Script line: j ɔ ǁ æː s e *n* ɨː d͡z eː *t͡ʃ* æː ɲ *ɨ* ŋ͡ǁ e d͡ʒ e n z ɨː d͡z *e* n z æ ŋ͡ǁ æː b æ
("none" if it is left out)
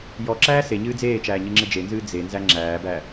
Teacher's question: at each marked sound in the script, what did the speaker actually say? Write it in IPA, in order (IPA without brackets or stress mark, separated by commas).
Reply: ɲ, t͡ʃ, ɨ, e